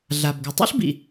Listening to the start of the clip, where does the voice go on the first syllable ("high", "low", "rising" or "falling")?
low